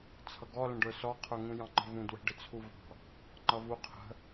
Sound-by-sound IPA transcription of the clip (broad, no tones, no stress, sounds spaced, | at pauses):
t͡sʰ ʌ ɡ ɔ l ə̃ ɖ ə˞ s ɔ qʰ ə˞ ŋ ũ j ɑ̃ ŋ͡ǃ ə̤ v ũ d w ə̤ ɖ ɪ t͡sʰ u v ɑ̤ | ŋ͡ǃ ʌ v u qʰ ə̤